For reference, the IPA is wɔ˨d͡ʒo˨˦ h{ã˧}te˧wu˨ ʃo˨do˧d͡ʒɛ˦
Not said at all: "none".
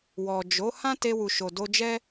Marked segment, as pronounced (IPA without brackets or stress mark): ã˦